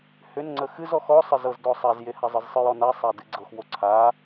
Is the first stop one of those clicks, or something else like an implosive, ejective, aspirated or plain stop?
click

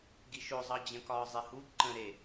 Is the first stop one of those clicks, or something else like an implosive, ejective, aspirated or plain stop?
plain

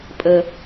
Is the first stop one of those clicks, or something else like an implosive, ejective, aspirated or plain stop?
ejective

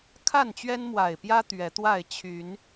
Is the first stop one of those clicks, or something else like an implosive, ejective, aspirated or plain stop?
aspirated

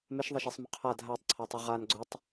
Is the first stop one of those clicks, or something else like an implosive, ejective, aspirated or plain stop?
aspirated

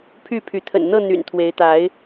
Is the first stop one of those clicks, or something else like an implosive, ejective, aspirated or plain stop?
aspirated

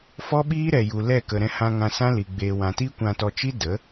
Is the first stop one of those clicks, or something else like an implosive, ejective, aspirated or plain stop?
implosive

